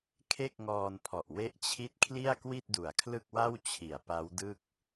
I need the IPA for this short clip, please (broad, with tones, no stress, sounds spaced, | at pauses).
kʰ e˥˩ k̚ ŋ ɔː˧ n pʰ ɔ˨˩ ʔ w e˦˥ ʔ t͡ɕʰ i˦˥ t̚ kʰ l i˥˩ a̯ k w i˥˩ t̚ d u˨˩ a̯ kʰ l ɯ˥˩ k̚ w a˥˩ w t͡ɕʰ i˩˦ a̯ p a˦˥ w d ɯ˥˩ k̚